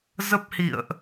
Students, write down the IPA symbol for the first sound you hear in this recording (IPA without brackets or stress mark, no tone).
z